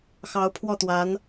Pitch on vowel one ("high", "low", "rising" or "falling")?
rising